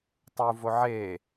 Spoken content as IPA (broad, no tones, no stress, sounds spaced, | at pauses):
tˤ u v o ʕ e